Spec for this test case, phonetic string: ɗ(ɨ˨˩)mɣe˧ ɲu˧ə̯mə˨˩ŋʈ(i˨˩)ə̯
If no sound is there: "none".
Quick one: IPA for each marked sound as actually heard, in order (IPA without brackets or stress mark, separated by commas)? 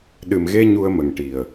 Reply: ɨ˨˩, i˨˩